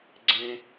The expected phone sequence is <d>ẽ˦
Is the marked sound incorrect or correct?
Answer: incorrect